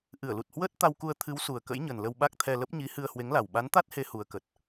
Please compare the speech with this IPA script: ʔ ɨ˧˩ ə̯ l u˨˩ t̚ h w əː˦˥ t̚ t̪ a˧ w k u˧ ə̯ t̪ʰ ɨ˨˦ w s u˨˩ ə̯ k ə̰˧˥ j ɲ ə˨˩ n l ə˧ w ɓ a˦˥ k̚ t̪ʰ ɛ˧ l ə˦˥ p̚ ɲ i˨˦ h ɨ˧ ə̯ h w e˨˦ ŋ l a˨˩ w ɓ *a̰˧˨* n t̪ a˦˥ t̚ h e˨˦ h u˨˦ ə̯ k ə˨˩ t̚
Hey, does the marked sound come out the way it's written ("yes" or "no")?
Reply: no